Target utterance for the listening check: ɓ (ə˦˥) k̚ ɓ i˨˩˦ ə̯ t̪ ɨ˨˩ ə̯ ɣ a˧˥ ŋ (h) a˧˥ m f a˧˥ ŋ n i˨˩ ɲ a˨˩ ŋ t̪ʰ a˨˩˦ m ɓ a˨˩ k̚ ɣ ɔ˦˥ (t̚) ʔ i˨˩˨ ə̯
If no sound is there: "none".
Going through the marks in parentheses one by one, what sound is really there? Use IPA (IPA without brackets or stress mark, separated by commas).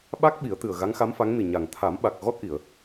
a˦˥, x, t̚